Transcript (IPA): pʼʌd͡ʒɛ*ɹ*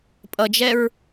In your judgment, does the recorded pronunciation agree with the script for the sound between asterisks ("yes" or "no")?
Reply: yes